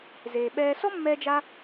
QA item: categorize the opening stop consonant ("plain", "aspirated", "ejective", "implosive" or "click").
implosive